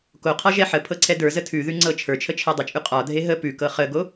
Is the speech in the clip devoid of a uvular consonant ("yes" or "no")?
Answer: no